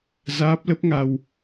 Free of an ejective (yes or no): yes